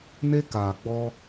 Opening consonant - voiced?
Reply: yes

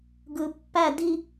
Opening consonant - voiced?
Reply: yes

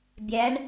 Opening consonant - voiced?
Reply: yes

